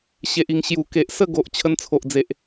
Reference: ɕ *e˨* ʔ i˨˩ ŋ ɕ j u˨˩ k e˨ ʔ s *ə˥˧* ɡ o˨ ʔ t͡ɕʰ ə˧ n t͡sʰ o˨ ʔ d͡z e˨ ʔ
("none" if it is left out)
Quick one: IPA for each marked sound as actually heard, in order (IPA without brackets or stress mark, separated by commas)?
e˨, ə˥˧